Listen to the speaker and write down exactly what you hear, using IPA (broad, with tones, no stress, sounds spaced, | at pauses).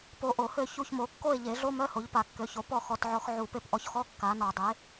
p o˧ ʔ o˨˩˦ h ø˥˨ ç u˥˨ ç m o˧ kː o˥˨ e̯ ʎ e˨˩˦ ɮ o˧˥˧ m œ˧˥˧ h o˩˥ ʎ p a˨˩˦ kː ø˩˥ ç o˨˩˦ p ɔ˥˨ x ɔ˧ t ʕ ɔ˧ x ʕ u˨˩˦ p e˧ p ʔ ɔ˧ ç x ɔ˧˥˧ kː a˩˥ n ɔ˨˩˦ dˤ e˩˥